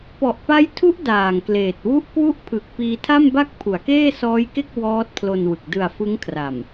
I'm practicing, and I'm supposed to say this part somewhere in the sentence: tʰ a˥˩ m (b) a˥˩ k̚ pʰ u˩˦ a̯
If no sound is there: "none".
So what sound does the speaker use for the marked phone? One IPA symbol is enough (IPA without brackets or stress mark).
b